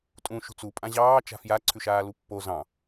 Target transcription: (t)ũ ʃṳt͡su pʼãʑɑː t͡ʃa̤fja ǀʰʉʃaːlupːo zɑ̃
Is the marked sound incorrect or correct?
incorrect